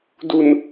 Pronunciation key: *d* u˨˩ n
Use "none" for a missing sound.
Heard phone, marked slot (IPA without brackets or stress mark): d